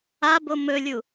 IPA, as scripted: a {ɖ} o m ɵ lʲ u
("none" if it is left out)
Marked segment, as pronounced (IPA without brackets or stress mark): b